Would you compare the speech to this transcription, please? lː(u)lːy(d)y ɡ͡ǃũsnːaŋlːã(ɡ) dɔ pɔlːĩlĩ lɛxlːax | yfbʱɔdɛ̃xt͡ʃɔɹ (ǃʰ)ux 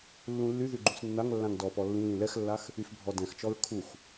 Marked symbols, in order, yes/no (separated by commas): no, no, no, no